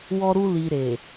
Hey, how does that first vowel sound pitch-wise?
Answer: high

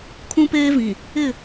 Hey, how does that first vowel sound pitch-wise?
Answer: high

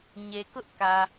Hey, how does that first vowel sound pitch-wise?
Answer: low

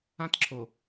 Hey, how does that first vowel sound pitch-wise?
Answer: high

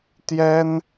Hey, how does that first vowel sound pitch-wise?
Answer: high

